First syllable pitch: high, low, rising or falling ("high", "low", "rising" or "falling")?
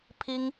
high